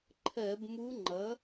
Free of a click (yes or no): no